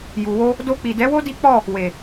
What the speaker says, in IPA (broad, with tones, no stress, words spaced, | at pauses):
ju˨wo˧ | do˧k͡pi˨dɛ˨˦wo˦ di˦k͡pɔ˦˨ | we˨